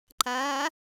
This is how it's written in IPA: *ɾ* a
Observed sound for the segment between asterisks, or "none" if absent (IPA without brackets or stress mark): ǃ